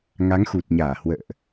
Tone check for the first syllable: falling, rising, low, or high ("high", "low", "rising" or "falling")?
rising